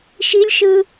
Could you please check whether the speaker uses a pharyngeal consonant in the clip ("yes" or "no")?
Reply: no